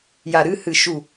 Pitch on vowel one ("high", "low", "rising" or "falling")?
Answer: low